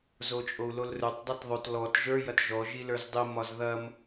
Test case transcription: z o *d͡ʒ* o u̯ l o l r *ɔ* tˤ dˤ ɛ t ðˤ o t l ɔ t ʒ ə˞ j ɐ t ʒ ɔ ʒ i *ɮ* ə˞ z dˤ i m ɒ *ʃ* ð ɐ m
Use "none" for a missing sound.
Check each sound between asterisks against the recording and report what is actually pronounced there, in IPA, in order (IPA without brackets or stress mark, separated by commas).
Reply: t͡ʃʼ, ɵ, l, z